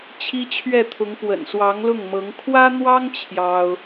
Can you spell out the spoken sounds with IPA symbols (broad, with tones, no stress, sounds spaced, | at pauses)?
t͡ɕʰ i˥ t͡ɕʰ ɥ ɛ˥˩ t̪ʰ ʊ˧˥ ŋ p w ə̰˨˩ n s w ɑ˧˥ ŋ l ʊ˥˩ ŋ m ɤ˧˥ ŋ kʰ w ä˥ n̪ w ɑ˥ ŋ t͡ɕʰ j ɑ˥ ʊ̯